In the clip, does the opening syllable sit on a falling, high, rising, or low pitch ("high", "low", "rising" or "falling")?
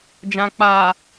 low